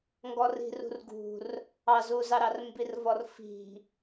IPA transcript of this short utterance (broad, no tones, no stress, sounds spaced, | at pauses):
ŋ ɡ ɔ r i̤ r ṳ r ɡ ṳ r | ɑ z u z ɑ ɾ ɑ r m b i r v ɔ r f i̤